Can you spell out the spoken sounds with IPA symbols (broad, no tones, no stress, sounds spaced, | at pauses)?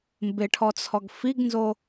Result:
m b ɪ ʈʰ ɔ t͡sʰ ɔ ɡ f i ɡ n z o